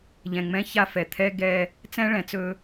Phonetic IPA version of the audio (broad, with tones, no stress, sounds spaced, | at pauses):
ʎ ɛ̃˨ ŋ͡m ɛ̃˦ ç a˦ f ɛ˨ t̪ʰ ɛ˦ ɡ ɛ˦ | t͡s ɛ̃˦ ɭ ɛ̃˨ t͡s ɵ˦